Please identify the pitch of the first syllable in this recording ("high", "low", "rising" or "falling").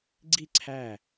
falling